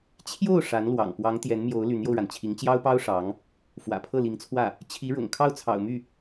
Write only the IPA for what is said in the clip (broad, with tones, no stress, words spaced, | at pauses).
t͡ɕʰjo˥˩ʊ̯ ʂa˧˥nlwɑ̰˨˩ŋ pwɑ˧˥ŋt̪jɛ˧˥nmjo˧˥ʊ̯ ly˧˥njo˧ʊ̯ɻa˩n t͡ɕʰi˧˥ŋt͡ɕjɑ˥ʊ̯pɑ˥ʊ̯ ʂɑ˧˥ŋ | fwä̰˨˩pʰɤ˥˩li˧˥ŋt͡sʰwä˥˩ | t͡ɕʰi˧˥ɻʊ̰˨˩ŋ kʰɑ˥˩ʊ̯t͡sʰɑ̰˨˩ʊ̯my˥˩